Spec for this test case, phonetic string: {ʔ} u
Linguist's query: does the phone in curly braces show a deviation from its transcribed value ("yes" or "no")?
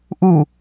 no